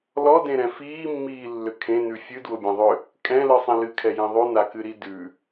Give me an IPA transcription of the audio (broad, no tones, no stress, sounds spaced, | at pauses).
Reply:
l ɔ d ẽ ɾ ɛ̃ f iː mː iː lː ʏ kʰ ẽ n ʉ fʲ ɨ d w ʊ bʲ ɛ̃ ðˤ ʏ | kʼ ɛ̃ l ɨ sˤ ĩ l ɨ kʰ ɛ j ĩ ðˤ ʉ n a k ɨ ɾ i d ʉ